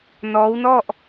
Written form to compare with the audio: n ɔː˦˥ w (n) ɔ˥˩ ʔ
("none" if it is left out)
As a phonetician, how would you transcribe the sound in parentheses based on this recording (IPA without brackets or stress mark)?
n